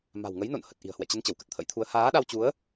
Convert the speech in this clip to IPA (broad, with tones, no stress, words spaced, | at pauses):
ma̤˨˩wŋə˨˦jno̰˧˨n hə˨˩t̚ ʔi̤˨˩ə̯hwɛ̰˧˨ t͡ɕə˧n t͡ɕə˧˩wkə˨˩t̚t̪ʰə̰˧˥jt̪ʰu˨˦ə̯ haː˨˦ɗa˧wt͡ɕu˨˦ə̯